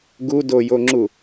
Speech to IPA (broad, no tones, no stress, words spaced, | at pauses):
ɡudojoŋ͡ǁu